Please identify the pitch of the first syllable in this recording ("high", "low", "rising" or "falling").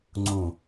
low